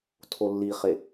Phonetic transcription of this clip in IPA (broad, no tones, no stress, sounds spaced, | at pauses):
tʰ o lː i χ e